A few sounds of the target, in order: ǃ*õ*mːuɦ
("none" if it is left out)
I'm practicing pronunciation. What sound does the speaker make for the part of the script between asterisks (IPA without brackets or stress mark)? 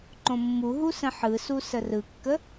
õ